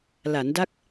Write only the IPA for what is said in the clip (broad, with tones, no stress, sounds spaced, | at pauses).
l a˩˦ n d a˦˥ k̚